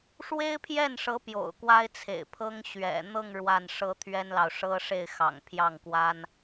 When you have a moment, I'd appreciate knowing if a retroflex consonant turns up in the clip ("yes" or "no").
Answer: yes